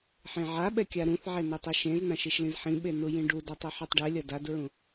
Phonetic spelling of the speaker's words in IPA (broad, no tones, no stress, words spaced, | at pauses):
ħẽʕaɓɛ kʲaɾũθʕɛ nɛtˤeʃẽznãʃ iʃlĩzħĩɓe nujĩɖudatˤ ɛħɛtˤɖɛlʲʌ dadɹũ